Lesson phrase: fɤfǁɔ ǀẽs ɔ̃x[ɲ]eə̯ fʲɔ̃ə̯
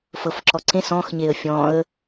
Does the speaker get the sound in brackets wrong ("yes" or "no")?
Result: no